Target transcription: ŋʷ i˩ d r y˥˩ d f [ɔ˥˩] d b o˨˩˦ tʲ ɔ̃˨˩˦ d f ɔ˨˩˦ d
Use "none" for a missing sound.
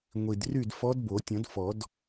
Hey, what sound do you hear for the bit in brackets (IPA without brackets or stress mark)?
ɔ˧˥